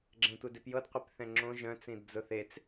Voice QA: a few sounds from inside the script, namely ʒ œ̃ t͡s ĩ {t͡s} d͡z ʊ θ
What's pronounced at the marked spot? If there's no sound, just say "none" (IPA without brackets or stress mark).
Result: d